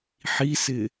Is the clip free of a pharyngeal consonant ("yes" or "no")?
no